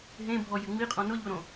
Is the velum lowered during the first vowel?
yes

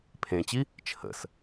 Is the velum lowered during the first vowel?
yes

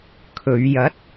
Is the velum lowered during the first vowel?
no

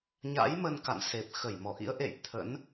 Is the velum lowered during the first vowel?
no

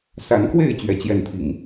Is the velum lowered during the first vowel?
no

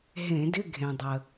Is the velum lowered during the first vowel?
yes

